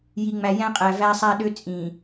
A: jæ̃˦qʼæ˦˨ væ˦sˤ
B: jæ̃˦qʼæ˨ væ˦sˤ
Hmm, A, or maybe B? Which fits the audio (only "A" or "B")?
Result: B